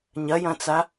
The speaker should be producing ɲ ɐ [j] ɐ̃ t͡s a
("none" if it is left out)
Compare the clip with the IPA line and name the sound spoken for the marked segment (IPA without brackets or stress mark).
j